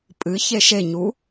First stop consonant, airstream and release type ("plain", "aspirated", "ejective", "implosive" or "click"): ejective